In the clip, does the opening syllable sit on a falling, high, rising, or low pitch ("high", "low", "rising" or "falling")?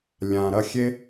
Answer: low